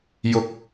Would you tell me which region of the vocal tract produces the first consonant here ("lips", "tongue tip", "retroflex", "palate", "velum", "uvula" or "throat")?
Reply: palate